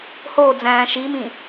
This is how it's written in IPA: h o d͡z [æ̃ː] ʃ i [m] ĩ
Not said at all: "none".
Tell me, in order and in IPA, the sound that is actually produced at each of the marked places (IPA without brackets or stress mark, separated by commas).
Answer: æ̃ː, m